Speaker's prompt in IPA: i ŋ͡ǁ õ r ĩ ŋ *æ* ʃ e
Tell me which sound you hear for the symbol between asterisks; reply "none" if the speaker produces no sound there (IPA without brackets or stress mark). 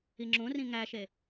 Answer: æ